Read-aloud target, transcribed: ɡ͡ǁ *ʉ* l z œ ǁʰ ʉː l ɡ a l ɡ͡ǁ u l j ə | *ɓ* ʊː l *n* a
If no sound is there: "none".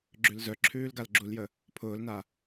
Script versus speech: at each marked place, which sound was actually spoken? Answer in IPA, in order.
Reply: ʉ, pʰ, n

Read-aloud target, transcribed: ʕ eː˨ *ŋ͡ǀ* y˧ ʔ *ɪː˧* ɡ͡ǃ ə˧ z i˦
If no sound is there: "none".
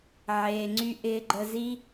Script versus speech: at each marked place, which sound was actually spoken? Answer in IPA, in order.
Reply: ŋ͡ǀ, ɪː˧

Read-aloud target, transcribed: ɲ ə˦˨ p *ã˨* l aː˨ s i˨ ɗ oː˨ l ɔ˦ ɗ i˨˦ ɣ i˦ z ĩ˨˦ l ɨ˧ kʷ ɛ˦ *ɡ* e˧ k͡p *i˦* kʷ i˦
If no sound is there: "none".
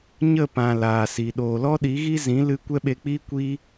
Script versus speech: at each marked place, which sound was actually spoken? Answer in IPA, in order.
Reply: ã˨, ɓ, iː˦

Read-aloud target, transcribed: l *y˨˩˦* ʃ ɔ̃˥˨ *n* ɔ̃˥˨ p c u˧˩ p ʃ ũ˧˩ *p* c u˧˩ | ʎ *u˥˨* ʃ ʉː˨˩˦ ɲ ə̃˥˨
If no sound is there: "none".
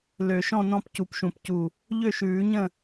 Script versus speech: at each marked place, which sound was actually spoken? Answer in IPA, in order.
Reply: ø˨˩˦, n, p, ø˥˨

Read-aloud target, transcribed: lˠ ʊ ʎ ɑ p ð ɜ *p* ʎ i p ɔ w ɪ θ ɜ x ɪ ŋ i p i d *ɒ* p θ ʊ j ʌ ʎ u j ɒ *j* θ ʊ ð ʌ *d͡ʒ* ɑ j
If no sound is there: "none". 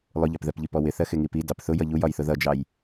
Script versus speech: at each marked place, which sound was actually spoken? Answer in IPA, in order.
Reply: p, ɑ, j, d͡ʒ

